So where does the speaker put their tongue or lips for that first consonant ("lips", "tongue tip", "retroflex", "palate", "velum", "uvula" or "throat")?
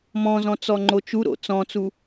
lips